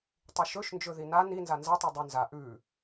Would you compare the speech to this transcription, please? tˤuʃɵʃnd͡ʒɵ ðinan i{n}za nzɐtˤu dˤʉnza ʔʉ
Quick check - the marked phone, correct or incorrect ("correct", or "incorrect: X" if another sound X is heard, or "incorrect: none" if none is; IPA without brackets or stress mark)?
correct